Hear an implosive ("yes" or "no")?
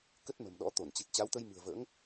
yes